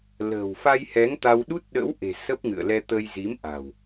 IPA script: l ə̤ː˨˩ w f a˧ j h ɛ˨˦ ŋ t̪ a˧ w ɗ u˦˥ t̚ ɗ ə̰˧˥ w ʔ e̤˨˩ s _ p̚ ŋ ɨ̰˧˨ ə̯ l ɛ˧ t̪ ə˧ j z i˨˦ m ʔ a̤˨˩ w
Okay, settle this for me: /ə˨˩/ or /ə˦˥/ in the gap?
ə˦˥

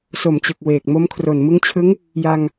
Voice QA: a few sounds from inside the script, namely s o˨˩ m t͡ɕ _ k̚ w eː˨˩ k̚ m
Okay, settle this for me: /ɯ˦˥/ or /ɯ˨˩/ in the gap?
ɯ˨˩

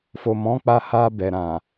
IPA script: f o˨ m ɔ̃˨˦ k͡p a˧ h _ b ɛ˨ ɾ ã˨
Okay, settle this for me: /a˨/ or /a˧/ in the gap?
a˧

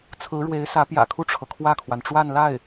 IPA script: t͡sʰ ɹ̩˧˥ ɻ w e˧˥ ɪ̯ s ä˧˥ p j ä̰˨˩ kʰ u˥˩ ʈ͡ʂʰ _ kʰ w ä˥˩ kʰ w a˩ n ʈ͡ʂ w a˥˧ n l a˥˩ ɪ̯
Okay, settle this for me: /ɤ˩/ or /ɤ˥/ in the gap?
ɤ˩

